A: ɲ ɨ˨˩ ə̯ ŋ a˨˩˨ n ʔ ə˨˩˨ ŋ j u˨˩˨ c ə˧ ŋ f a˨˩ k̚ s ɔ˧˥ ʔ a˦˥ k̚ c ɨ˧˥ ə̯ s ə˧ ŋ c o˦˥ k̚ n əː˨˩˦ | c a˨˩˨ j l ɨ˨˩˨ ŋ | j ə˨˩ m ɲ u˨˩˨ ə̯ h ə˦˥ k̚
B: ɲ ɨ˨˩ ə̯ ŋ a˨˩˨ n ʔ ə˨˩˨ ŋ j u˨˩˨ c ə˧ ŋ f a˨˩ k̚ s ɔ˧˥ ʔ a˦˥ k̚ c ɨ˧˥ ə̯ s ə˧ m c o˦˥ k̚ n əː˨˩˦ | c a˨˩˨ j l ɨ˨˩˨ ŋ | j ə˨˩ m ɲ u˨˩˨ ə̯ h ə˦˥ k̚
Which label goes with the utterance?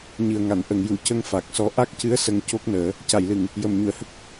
A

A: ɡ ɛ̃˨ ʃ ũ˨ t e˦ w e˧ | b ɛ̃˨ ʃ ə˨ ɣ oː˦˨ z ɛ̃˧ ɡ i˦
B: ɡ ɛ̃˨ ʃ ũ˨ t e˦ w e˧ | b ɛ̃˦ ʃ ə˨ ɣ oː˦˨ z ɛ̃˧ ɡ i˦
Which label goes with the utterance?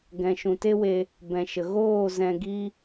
A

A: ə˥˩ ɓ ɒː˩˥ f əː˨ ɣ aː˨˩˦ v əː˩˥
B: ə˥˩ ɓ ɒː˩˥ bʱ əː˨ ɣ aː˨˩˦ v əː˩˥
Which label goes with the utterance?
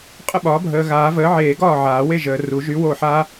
B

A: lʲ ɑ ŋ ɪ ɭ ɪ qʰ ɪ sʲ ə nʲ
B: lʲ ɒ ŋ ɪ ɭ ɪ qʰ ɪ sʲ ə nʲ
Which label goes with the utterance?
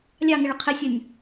A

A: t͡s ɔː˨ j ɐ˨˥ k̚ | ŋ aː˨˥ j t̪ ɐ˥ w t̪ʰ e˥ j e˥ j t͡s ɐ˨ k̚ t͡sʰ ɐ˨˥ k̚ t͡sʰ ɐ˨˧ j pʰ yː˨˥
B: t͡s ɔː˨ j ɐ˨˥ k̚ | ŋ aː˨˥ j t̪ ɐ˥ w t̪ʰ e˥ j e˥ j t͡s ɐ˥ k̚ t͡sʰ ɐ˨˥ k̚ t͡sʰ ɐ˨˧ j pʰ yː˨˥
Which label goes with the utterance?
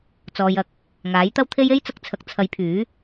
A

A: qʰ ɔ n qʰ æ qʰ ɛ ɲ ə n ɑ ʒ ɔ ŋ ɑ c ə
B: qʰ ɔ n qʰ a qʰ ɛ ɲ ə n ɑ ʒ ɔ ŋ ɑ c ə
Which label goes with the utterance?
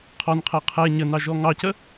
A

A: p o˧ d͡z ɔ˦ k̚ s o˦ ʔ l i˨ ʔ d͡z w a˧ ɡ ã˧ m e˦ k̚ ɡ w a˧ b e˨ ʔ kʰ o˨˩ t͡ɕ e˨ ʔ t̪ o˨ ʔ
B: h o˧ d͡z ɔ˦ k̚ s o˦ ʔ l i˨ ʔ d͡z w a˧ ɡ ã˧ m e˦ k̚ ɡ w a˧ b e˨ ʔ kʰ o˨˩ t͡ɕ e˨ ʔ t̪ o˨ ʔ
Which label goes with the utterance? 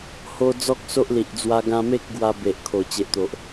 B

